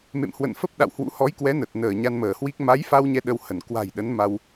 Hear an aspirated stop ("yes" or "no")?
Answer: no